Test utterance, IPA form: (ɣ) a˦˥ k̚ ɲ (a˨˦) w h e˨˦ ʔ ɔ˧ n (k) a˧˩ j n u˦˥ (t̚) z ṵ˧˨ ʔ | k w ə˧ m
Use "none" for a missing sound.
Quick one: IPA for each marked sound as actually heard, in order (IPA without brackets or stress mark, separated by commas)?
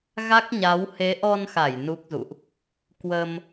ɣ, a˨˦, x, k̚